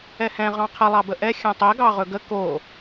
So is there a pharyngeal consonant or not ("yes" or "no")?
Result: no